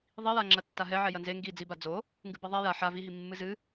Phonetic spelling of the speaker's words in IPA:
ðˤ i j a ŋ͡ǁ ɐ tː a ɦ ɛ ʕ ɛ j ɐ n z e ŋ ɡ i d͡z i b a d͡z o | ŋ ɡ ɨ b ɛ ðˤ ɛ j a ħ a v i ɦ i mː ɨ z ɨ

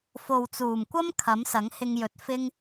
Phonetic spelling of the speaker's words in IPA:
f o˨ w t͡s uː˨˩ m kʷ ɐ˥ m kʰ ɐ˨˥ m s ɐ˨˥ ŋ h ɪ˧ ŋ j ɵ˨˥ t̚ f ɪ˥ ŋ

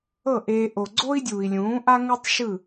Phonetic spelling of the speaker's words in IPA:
ɤ˦˨ ʔ eː˧ ʔ o˨ ɡ͡ǀ o˦ i̯ dʲ uː˨ i̯ lʲ ũː˨˦ ʔ a˦ ŋ u˦ tˤ ʃ ɯ˦˨

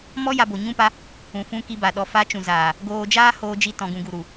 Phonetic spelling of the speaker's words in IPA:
m ɔ˦ j a˧ b o˨ ɲ ũ˦ p a˦ | ũ˨ f ũ˧ k i˧ b a˨ ɗ ɔ˨ f a˨˦ t͡ʃ ũ˨ z aː˨ | ɡ oː˧ d͡ʒ aː˦ h oː˧ d͡ʒ i˧ t ɔ̃˨ ɡ ũ˨ ɡ u˨ ɾ u˨

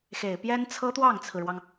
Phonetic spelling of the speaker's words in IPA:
x e˨˩ ɪ̯ p j ɛ˥ n t͡sʰ ɤ˥ t̪ w ɑ˥˩ ŋ t͡sʰ ɹ̩˩ ɻ w ɑ˩ ŋ

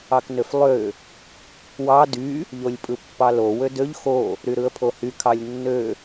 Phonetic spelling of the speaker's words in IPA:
ɑ k n ø f lˠ ø | w ɑ d y | ʎ o lʲ pʼ ɯ pː ɑ l o w ø d ø ʎ x o | ɾ y ɾ ɯ ə̯ pʰ o h y kʰ ɑ lʲ nː ø

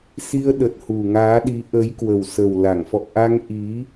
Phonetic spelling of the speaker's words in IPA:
s i˧ ə̯ ɗ ə˨˩ t̚ h u˨˩ ŋ aː˨˦ ɗ i˨˦ ʔ ə˨˦ j k w ə˨˩ w s ə˨˩ w l a˧˩ ŋ f ɔ̰˧˨ ʔ a˧ ŋ ʔ i˨˦

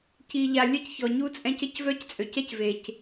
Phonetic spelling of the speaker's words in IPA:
c i˨ ʎ a˨ lʲ ə˦ c ç ɔ˨ ɲ u˦ t͡sʼ ɛ̃˦ c ə˦ c v œ˦ c t͡sʼ ø˨ c ɛ˦ c v e˨ c

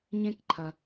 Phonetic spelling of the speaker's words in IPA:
ɲ ẽ˥ k ǃʰ ɐ˧

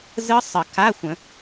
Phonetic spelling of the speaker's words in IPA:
z ɯ˦˥ sˤ ə˨˩˦ k a˧˥˧ xʷ ə̃˨˩˦

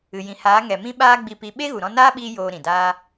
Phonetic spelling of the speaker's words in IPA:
ɨ˨ j ĩ˨ h aː˨˦ ŋ ɛ˨ m ĩ˦ ɓ aː˦ ɡ͡b i˧ p i˧ ɓ e˦ ɣ u˨ ɾ ɔ̃˧ n aː˦ ɓ iː˧ j oː˧ ɾ ĩ˨ d aː˦

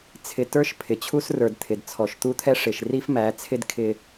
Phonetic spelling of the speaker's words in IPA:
t͡sʰ ɪ˨ t ə˞˦ ʃ pʰ ɪ˨ t͡ɕʰ u˦ s r ə˞˨ d t̪ʰ ɪ˨ d t͡sʰ ɔ˨ ʃ t̪ u˦ t̪ʰ ɛ˦ ʂ ɪ˨ ʃ r i˦ f m æ˨˦ t͡sʰ ɪ˦ d kʰ ɪ˦

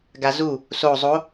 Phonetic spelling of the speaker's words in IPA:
ɡ a z u | s o zˤ o

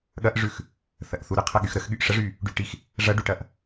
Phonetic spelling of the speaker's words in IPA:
ɠ ɐ ʔ ʐ ʉ x | θ ɐ ʔ θ u ɾ ə qʰ ɐ ɠ y x ɾ ə x ɠ y ʔ ʂ ə ʐ y | ɖ y ʈ i x | ʐ ɐ ɖ u ʈ ɐ ʔ

